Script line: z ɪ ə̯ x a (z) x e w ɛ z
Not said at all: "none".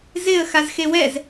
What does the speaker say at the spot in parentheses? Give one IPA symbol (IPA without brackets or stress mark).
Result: z